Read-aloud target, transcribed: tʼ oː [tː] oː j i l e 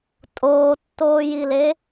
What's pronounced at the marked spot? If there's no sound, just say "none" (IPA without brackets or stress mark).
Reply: tː